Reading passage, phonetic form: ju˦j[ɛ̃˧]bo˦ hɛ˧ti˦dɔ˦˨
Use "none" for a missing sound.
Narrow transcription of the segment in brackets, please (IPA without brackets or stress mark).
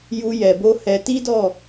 ɛ˧